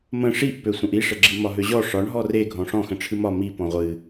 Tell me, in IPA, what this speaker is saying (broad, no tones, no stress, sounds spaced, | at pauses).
m ə̃ ʂ i ʔ p ø sʷ ə̃ ʔ i ʂ ə ɡ͡ǁ i m ɒ ɦ ø ʑ ɔ ʂ ɒ ɳ ɦ ɔ r e ɡʱ ɔ̃ ʂ ɔ̃ x ə̃ ʈ͡ʂʰ ɨ m ɒ m i p ɔ̃ ʁʷ ɨ